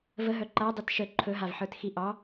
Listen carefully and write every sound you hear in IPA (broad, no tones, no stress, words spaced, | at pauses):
vəɦœ ǃadˤit ʃə ǃʰɵɦavħə˞txi ʔɑ